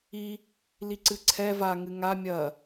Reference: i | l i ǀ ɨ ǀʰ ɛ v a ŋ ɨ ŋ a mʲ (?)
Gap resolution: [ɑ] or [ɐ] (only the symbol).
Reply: ɐ